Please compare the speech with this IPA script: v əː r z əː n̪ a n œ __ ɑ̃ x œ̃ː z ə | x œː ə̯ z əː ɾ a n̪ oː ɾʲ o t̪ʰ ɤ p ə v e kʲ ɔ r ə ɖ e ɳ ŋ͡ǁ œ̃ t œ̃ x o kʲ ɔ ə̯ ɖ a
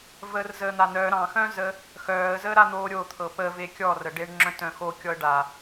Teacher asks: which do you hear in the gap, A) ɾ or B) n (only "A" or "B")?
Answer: A